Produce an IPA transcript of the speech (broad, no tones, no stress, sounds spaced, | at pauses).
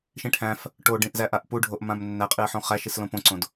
ʃ ĩ ʈʰ æ̃ f | ʈ o ɖ ĩ ʔ z æ ʔ a ʔ p u ɖʱ o ʔ m ã m nː æ qʼ i ə̯ ħ õ χ æ ʃ i s l õ p õ ǀ õ d